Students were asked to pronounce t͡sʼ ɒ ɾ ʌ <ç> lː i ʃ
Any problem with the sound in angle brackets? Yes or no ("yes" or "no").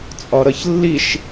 no